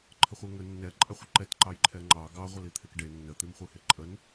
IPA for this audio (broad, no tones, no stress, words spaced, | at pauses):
ǃʰəχʷeŋə nːɛ ǃʼɛχʷəǃɛt ǃɑjǃʰɛŋ͡ǃɑ ɡɑ ʁʷəlit̪ʰekɖe nːə t̪imχʷeheǃʼən